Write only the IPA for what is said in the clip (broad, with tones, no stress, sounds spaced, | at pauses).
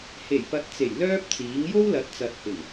h e˨˩ j p ɐ˨˥ t̚ t͡s e˨˩ j l œː˥ p̚ t͡s iː˨˥ ŋ j o˥ w l ɐ˨˥ t̚ t͡s ɐ˨ t̚ h ɪ˨˩ ŋ